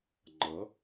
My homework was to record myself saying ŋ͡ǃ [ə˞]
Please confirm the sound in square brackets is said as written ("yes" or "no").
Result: no